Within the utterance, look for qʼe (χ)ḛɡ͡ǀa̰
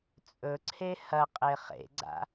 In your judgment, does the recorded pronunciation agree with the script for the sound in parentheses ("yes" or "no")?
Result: yes